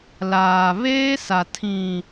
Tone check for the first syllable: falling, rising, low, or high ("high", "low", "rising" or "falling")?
low